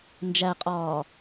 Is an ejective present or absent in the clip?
present